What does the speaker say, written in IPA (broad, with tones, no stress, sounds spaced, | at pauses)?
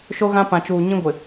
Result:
ʃ o˦ ɣ ã˦ p ã˨ t͡ʃ uː˨ ɲ ĩ˦ ɡʷ ɪ˨